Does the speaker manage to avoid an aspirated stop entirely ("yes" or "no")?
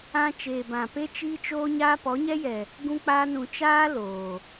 yes